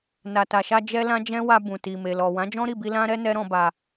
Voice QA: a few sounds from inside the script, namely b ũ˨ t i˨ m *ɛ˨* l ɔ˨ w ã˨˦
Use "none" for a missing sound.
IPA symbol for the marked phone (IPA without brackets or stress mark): e˨